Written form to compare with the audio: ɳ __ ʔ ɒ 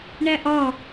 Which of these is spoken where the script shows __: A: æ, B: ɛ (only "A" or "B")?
A